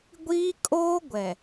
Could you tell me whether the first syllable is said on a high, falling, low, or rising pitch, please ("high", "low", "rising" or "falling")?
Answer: high